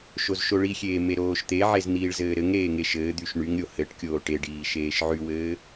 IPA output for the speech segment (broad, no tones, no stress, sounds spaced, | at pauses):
ʃ o z ʃ o ɭ i xʲ eː m e ɾ oː ʃ t̪ e ʕ e z n̪ iː ɭ z ɘː ɾ ɘ ŋ ɾ eː ŋ e ʃ ɘː d̪ y ʃ ɳ y ŋ ɾʲ o h ɘ ʈ kʲ oː ʈ e ɖ iː ʃ eː ʃ ʕ y w ɘː